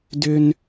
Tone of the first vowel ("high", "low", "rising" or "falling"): low